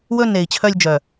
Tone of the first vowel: high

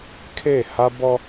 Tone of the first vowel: falling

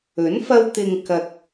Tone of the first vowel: rising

